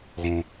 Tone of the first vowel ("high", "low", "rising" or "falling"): low